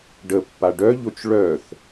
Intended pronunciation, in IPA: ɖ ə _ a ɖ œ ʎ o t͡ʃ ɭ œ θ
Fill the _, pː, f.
pː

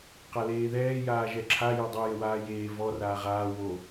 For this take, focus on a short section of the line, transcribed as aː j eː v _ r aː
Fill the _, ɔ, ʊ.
ɔ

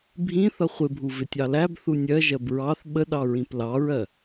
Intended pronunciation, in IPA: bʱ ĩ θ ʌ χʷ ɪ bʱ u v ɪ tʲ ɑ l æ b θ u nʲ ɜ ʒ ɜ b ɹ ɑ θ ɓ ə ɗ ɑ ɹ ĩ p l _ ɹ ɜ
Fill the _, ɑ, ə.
ɑ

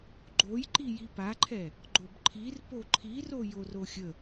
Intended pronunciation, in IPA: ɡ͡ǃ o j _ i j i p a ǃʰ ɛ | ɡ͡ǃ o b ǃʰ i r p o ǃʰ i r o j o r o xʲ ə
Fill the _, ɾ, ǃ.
ǃ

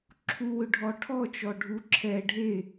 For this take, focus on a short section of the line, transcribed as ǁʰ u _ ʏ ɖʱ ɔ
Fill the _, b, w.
w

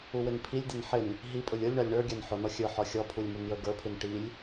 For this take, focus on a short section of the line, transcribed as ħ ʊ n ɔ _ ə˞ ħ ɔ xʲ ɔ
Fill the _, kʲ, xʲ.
xʲ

